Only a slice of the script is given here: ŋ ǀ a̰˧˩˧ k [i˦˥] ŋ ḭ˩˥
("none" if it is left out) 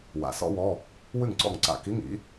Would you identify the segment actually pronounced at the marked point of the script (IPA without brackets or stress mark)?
i˧˥˧